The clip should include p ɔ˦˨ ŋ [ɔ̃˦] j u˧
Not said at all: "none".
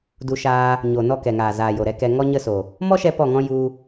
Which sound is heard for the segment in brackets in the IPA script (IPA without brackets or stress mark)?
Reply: ɔ̃˦